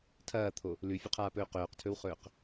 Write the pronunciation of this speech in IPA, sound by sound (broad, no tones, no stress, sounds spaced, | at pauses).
tʰ ɐː t̪ʰ o | l ʉ fʲ ɵ qʰ aː p ɵː q ɵː q tʰ ɵ w χ ɵː q